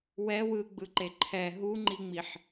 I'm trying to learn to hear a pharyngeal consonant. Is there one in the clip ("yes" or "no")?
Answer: yes